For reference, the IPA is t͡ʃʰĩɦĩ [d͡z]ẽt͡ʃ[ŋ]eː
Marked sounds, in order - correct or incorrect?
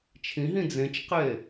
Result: correct, incorrect

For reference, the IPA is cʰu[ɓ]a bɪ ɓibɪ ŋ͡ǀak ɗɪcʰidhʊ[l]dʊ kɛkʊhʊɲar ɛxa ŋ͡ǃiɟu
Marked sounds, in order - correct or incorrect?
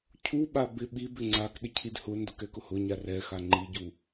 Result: correct, incorrect

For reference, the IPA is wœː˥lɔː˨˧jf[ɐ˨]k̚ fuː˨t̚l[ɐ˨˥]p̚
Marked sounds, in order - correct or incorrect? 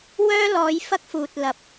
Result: incorrect, correct

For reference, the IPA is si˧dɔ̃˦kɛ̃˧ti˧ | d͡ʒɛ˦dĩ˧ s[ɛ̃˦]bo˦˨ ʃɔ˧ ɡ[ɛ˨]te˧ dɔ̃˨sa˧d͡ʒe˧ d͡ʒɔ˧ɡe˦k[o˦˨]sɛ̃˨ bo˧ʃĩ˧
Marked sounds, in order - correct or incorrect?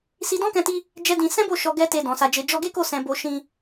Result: correct, incorrect, correct

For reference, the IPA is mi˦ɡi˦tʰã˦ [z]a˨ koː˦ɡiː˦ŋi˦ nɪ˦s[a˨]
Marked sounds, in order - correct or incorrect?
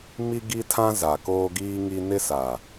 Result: correct, correct

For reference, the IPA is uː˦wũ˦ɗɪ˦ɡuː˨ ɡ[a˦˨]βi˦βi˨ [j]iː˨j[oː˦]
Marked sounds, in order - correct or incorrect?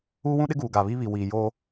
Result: incorrect, incorrect, correct

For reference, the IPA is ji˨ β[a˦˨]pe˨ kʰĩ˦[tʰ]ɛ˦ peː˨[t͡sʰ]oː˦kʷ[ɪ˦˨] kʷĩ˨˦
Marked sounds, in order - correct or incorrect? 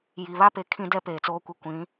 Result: incorrect, incorrect, incorrect, correct

